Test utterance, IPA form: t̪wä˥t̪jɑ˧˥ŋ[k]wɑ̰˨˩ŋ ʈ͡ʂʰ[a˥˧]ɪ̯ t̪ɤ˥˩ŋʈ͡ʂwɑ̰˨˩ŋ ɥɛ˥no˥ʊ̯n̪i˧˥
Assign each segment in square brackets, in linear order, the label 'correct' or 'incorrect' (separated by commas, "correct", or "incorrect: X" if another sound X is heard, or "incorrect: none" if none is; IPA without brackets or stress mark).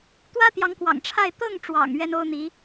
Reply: correct, correct